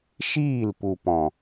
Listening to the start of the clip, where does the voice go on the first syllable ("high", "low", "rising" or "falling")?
falling